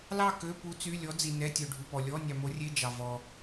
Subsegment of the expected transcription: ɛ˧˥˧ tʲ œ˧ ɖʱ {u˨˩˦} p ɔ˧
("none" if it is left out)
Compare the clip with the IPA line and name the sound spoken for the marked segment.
u˧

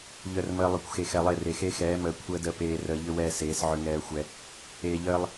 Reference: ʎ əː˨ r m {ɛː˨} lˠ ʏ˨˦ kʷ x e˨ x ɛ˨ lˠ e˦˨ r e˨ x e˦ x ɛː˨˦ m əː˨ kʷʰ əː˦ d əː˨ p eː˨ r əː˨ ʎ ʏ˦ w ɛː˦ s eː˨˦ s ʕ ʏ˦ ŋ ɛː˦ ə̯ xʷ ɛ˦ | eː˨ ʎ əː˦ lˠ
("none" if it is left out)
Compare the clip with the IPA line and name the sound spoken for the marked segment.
əː˨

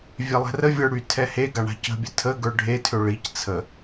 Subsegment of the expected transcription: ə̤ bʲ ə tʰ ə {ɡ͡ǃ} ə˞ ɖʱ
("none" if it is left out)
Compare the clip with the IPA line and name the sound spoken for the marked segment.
ɡ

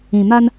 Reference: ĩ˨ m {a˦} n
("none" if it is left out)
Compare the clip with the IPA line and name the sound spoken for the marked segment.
a˦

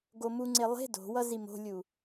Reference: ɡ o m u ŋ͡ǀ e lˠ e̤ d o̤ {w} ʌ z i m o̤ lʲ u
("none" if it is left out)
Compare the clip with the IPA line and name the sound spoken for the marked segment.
w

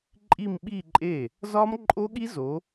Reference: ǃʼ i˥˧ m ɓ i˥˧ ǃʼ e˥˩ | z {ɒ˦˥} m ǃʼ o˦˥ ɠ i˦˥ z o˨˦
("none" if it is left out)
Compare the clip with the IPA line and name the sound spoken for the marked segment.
ɒ˦˥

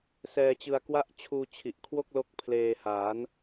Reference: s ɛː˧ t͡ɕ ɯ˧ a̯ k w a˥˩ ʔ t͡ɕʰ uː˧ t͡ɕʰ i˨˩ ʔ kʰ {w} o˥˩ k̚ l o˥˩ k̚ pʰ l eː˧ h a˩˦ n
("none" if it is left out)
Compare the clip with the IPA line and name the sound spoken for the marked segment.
w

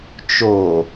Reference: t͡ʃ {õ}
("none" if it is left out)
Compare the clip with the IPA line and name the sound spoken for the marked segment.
o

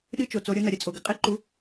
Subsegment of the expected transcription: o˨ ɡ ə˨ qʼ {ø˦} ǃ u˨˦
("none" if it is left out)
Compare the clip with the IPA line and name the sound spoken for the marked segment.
e˦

